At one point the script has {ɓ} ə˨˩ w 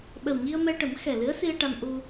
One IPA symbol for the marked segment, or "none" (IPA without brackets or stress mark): ɓ